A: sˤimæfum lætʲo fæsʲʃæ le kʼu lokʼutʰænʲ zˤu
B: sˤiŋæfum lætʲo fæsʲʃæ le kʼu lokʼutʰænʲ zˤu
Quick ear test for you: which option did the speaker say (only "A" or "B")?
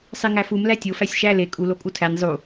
B